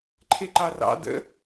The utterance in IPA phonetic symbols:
ǃʰ e ǃ ɑ r ɑ̰ d ə̰

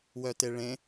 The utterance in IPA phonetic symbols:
w œ t e ɭ ẽ

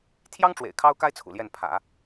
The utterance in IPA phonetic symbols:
t̪ʰ j ɑ˥ ŋ ʈ͡ʂ w ḛ˨˩ ɪ̯ kʰ ɑ˥ ʊ̯ k a˥ ɪ̯ t͡sʰ ṵ˨˩ l j ɛ˥˩ n pʰ ä̰˨˩˦

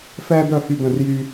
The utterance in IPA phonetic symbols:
f ɛː˦ d̪ œ˦˨ h y˦˨ d̪ ə̃˦˨ r j yː˦

